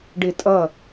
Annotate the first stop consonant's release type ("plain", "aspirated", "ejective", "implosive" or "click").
plain